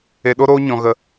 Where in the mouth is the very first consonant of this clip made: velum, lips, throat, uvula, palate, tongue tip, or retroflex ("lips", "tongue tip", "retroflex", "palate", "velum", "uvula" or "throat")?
tongue tip